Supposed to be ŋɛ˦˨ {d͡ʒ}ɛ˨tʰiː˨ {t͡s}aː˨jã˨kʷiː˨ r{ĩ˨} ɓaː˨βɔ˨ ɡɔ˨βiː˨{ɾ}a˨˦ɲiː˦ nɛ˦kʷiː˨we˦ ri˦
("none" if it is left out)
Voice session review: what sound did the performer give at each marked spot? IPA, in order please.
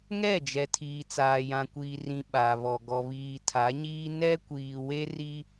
d͡ʒ, t͡s, ĩ˨, tʰ

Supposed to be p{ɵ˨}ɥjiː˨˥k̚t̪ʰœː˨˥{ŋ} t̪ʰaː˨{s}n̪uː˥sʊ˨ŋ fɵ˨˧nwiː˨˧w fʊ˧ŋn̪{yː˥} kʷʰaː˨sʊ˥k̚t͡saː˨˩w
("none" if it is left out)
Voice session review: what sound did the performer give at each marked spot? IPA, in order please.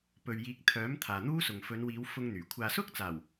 ɵ˨, m, none, yː˨˩

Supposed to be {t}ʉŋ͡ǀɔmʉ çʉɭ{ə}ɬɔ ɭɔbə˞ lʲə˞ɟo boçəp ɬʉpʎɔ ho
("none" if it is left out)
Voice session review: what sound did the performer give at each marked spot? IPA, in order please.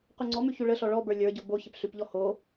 q, ə

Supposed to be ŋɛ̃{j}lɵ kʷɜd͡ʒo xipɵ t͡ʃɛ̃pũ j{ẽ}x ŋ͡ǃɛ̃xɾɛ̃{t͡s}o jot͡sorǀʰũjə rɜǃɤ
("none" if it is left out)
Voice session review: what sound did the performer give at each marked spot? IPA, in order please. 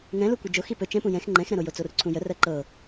none, ɛ̃, ɾ

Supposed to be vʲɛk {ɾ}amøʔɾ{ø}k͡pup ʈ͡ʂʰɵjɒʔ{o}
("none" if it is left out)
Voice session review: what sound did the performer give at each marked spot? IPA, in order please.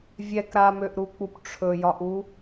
ɾ, u, u

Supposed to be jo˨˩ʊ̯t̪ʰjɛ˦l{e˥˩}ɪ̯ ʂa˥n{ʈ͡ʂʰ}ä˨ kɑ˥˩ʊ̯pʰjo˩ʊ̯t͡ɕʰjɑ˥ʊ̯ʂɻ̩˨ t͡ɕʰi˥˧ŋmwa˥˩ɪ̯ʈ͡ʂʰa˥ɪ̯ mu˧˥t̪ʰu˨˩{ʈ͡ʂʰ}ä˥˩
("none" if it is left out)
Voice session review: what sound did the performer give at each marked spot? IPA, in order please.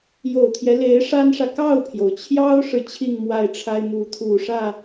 e˧˥, ʂ, ʂ

